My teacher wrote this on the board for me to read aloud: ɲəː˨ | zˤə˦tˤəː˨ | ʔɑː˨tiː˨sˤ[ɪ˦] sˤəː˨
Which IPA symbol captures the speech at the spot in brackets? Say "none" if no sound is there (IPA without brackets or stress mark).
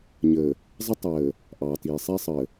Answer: ɛ˦